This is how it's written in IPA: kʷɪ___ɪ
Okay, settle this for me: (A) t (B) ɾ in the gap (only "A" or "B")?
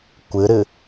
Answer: B